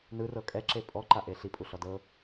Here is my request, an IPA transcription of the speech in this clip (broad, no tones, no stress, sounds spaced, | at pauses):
n ɯ r ɤ kʼ ɛ ǁ e pʼ ɔ ǃ a ʔ e ɬ i pʼ u ɬ ɔ d ɤ